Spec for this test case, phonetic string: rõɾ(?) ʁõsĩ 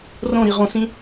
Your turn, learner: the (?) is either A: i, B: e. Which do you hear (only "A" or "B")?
A